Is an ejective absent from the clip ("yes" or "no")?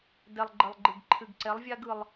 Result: yes